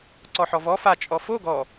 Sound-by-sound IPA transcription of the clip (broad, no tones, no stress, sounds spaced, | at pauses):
ǀ ɔ ħ ɔ v ɔ f a t͡ʃʼ ɔ f o ɡ ɔ